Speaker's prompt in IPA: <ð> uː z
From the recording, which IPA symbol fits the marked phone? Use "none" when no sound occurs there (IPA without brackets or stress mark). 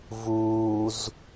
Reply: v